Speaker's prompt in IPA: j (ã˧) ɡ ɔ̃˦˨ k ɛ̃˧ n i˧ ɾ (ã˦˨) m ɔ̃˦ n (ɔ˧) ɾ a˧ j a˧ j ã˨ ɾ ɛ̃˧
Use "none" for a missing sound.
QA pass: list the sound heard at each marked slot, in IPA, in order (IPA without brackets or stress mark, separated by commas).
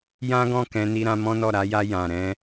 ã˦, ã˧, ɔ˦˨